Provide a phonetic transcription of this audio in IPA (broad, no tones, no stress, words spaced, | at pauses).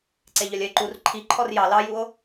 ǀeʎœlʲœe̯ǃur ǃʰi ǃʰɔrjɑ lɑjuo̯